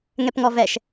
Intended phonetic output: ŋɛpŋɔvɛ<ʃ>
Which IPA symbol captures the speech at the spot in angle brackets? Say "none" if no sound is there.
ʃ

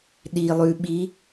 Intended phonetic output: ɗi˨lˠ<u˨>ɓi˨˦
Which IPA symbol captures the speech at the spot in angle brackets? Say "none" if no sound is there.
ʉ˨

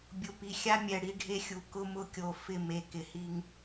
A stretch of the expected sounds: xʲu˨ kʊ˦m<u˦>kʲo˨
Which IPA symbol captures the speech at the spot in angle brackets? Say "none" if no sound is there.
ʊ˦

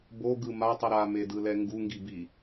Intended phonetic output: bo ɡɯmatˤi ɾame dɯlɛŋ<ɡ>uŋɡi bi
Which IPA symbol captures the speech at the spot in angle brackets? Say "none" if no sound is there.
ɡ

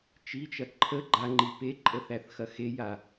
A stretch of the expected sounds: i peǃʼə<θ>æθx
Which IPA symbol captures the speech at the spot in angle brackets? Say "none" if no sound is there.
θ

